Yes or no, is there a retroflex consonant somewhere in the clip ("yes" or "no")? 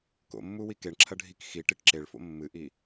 yes